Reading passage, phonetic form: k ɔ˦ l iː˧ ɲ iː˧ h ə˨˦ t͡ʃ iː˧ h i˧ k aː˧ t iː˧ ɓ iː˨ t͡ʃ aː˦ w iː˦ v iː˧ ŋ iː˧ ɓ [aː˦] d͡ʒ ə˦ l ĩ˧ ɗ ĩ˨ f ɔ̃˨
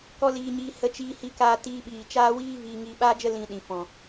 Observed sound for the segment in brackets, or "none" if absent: aː˦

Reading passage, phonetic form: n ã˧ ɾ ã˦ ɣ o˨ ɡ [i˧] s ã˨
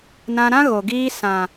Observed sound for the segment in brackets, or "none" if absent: iː˧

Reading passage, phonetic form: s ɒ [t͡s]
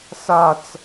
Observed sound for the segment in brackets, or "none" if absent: t͡s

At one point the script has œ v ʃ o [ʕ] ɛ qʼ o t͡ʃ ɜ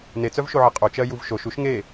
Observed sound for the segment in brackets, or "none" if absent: ʕ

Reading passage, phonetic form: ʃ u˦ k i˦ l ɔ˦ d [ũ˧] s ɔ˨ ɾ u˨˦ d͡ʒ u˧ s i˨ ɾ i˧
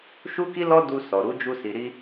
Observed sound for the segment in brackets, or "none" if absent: u˧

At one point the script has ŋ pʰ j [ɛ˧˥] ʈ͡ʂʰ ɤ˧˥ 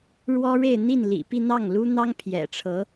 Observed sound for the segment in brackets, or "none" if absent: ɛ̰˨˩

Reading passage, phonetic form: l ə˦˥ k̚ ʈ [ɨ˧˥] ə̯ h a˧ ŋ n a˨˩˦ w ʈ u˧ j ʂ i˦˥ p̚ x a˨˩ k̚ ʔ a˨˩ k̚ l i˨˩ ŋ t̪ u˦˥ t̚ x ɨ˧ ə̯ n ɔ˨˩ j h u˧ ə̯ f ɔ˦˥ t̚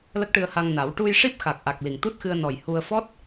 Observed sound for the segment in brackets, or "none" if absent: ɨ˧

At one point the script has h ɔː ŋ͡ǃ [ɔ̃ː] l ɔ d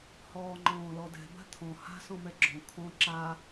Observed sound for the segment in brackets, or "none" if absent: ɔ̃ː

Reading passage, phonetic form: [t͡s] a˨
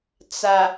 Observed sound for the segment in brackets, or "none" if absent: t͡s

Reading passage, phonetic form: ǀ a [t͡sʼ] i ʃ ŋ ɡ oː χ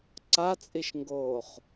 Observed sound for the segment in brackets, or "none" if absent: t͡sʼ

